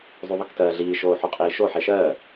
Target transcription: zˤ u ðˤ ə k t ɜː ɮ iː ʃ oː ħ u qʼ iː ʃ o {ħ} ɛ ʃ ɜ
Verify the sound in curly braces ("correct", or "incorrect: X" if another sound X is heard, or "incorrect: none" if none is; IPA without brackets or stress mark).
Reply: correct